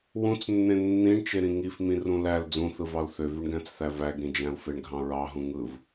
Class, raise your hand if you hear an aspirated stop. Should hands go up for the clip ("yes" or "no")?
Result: no